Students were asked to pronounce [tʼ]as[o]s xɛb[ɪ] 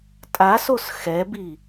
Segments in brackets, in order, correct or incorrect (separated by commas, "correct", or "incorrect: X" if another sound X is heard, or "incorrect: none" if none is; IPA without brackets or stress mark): correct, correct, incorrect: i